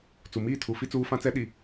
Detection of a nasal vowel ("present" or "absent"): present